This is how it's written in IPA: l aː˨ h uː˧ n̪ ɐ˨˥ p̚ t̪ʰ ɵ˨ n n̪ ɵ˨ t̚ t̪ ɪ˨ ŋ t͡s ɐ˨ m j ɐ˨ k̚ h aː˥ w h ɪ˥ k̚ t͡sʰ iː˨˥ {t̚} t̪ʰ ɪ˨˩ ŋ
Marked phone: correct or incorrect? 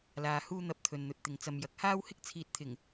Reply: correct